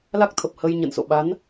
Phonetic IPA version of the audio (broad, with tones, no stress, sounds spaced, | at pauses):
l a˦˥ k̚ t̪ʰ ə˨˩ p̚ h ə˧ j ɲ ə̰˧˨ n s o̰˧˨ ɓ a˨˦ n